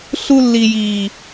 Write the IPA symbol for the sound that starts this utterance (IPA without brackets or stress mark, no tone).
ɬ